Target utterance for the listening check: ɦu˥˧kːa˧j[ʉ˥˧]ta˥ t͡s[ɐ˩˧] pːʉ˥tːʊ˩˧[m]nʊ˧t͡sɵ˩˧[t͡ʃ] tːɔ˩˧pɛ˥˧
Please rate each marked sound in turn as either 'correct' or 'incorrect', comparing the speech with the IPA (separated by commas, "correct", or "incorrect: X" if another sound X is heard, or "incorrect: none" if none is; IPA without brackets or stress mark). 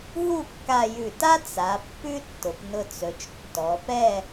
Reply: incorrect: ʉ˧˩, incorrect: a˩˧, incorrect: p, correct